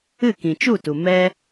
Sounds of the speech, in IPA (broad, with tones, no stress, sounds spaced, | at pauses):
ɨ˦˨ k ĩ˨ t͡ʃ u˦˨ t u˨ m ɛ˦